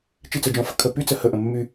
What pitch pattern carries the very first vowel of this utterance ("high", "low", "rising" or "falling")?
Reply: high